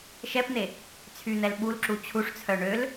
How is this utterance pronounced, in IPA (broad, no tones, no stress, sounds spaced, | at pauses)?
ʃ ɛ p n̪ e | t͡sʰ y n̪ ɛ l ɓ u l ǁ u t͡ɕʰ u ʂ t͡sʰ œ ɳ ø l